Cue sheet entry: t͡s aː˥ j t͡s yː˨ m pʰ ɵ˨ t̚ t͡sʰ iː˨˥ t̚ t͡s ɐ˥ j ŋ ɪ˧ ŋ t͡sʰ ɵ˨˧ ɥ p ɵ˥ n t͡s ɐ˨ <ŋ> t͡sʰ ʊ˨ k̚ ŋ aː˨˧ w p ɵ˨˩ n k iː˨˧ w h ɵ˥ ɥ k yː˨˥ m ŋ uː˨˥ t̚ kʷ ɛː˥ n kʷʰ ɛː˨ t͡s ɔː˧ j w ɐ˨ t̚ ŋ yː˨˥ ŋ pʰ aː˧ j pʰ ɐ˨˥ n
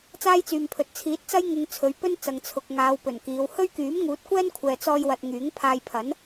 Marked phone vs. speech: correct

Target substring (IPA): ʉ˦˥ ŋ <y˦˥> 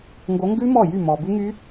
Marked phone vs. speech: correct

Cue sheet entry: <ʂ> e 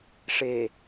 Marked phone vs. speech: correct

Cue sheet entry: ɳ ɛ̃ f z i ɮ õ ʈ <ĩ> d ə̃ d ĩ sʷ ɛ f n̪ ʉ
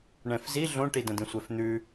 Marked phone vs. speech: incorrect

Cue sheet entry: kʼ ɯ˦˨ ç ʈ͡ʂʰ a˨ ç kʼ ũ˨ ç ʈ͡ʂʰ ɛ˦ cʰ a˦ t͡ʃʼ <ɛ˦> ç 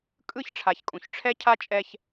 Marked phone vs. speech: correct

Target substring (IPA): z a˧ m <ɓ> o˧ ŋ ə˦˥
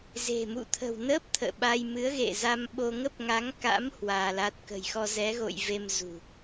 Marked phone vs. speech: correct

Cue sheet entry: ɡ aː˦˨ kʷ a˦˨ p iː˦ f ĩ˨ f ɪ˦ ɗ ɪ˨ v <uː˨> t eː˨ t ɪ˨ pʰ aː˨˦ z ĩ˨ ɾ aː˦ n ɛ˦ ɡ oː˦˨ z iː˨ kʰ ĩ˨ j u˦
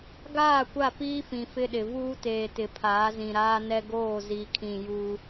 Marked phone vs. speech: incorrect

